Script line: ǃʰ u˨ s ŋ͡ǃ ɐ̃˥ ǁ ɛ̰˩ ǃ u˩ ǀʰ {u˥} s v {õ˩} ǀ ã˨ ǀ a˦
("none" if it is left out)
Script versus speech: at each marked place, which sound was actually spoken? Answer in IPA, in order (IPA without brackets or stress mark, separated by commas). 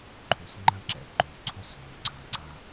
o˥, õ˩